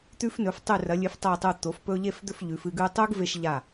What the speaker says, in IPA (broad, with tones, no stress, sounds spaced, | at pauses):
t̪ ʉ˧ f n ɵ˩˧ f tˤ ʉ˧˩ r ɐ˩˧ lʲ ɨ˩˧ f tˤ o˧˩ tˤ u˧˩ t̪ o˩˧ f p ɵ˧ ʎ e˥˧ f d̪ ɵ˥˧ f ʎ ʉ˩˧ f ɨ˧ ɡ ʉ˥˧ tˤ u˥ ɡ v e˧ ʃ ʎ a˧˩